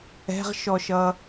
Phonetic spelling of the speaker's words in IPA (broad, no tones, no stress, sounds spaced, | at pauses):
ɛ̤ ʁ ʃ ɔ ʃ ʌ